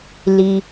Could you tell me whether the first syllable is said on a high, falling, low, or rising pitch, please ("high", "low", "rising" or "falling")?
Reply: low